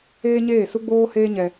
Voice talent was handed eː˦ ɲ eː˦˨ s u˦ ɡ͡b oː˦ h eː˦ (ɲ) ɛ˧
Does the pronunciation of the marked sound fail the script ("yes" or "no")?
no